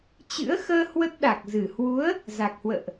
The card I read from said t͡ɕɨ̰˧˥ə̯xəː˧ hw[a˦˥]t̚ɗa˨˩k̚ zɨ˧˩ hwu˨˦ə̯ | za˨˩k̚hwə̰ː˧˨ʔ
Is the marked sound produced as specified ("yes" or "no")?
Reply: no